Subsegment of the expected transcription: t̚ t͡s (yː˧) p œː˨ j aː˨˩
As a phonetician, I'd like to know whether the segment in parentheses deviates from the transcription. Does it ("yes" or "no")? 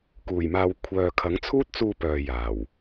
yes